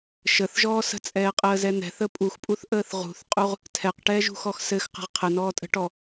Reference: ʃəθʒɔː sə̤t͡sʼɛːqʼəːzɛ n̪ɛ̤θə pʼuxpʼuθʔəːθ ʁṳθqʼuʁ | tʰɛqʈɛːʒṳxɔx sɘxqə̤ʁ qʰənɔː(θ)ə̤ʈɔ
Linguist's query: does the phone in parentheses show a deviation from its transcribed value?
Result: yes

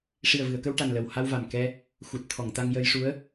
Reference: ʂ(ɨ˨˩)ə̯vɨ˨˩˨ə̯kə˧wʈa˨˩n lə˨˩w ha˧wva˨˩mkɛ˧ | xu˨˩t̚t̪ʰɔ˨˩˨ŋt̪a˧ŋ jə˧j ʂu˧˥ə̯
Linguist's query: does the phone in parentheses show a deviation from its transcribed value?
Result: yes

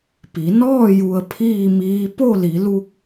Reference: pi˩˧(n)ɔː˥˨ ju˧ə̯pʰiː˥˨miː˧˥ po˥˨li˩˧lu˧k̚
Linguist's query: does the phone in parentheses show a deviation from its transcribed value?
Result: no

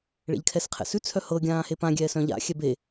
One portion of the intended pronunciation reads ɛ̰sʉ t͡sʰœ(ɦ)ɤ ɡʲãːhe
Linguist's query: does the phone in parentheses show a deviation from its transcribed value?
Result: yes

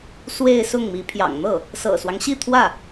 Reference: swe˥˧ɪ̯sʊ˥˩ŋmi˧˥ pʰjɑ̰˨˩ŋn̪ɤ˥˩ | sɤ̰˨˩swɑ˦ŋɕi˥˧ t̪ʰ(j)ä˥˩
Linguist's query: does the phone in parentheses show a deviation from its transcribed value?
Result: yes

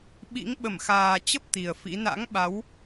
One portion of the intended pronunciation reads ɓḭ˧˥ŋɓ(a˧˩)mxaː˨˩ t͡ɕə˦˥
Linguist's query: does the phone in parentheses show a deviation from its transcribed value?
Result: yes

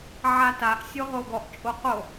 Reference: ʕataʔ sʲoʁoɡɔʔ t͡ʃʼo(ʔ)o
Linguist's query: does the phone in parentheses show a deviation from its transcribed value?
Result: yes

